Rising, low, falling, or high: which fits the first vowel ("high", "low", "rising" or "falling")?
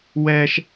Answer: high